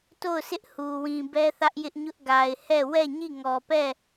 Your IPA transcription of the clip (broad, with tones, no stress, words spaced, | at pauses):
to˦˨ʊ̯sʰɪ˦ʔ hu˨ wĩ˨bɛ˦θä˦ʔ jɪ˦ʔɲʊ˦ʔ ɡa˨ɪ̯ hɛ˦˨ wɛ˦˨ɲi˦˨ŋɔ˨pɛ˦˨